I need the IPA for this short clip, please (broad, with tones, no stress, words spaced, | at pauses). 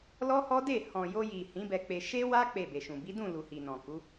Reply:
lɔ˦hɔ˦de˦˨ hɔ̃˨jo˧ji˨ hĩ˨˦bɛ˧k͡pe˧ ʃe˦wa˦ k͡pe˦˨be˨ʃũ˨ bi˨˦dũ˦˨ lu˨hi˨nɔ̃˨ku˨˦